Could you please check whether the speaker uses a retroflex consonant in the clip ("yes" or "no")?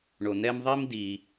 yes